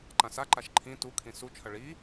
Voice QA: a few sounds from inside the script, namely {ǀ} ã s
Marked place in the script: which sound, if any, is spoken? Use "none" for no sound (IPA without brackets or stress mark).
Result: ǃ